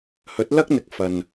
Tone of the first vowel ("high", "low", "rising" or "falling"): rising